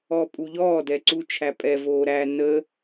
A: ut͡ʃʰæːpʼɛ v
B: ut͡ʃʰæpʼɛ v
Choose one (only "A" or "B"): B